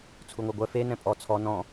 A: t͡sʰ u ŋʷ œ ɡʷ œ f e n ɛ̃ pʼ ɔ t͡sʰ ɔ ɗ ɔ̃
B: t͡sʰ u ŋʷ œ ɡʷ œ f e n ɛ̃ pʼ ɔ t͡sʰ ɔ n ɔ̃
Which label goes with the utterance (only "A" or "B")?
B